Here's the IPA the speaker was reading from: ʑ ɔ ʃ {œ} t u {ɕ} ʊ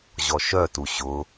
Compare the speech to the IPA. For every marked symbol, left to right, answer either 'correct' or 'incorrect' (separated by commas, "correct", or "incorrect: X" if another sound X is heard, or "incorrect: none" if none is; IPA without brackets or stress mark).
correct, correct